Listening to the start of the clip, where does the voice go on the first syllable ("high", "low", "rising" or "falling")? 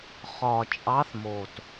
low